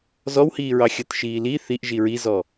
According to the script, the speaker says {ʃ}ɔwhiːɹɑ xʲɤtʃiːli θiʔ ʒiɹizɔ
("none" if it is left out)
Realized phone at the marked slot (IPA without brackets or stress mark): z